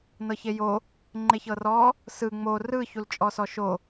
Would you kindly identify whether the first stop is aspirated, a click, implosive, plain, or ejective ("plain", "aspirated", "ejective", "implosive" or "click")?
click